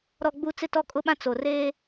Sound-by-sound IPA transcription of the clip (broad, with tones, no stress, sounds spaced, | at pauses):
ɾ ɔ˨ ɡ͡b u˨ t͡s ɪ˦˨ t ɔ˦ kʼ ʊ˦ ɓ ã˦ t͡s o˨ r eː˦